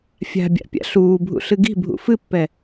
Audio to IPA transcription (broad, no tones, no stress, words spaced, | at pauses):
fʲa̤bʲa̰pʲa̰ ɬuːbʱṵɬɨ ɡi̤bʱṵ fɨpːɛ